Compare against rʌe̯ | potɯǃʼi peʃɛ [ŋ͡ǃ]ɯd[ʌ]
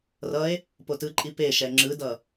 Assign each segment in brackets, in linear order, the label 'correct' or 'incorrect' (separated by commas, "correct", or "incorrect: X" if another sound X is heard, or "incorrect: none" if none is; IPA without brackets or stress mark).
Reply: incorrect: ŋ͡ǁ, correct